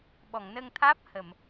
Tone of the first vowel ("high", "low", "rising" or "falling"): low